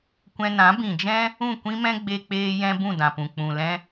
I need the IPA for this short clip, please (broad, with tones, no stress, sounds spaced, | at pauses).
kʷ ɛ̃˧ n ã˨˦ b ĩ˨ d͡ʒ ɛ̃˦ | ũ˦˨ kʷ ĩ˦ m ɛ̃˦ ɡ͡b e˦ k͡p eː˦ j ɛ̃˦ b ũ˦˨ d ã˨ p ũ˨ k͡p ũ˨ l ɛ̃˧